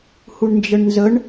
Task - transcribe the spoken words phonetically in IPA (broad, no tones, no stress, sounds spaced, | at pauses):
h u ɳ n d͡ʒ ə ɳ n z ə ɳ